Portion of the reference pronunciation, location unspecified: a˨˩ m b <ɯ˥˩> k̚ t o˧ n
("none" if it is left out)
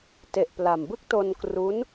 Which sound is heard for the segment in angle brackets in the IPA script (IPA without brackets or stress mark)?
ɯ˥˩